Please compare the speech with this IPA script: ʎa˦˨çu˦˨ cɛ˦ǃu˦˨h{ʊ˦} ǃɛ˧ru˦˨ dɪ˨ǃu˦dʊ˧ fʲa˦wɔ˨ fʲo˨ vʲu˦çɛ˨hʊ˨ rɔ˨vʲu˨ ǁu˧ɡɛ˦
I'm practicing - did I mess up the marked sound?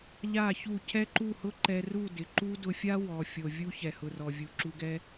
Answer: no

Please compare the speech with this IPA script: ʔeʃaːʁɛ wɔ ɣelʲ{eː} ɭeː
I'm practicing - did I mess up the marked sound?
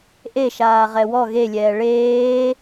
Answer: yes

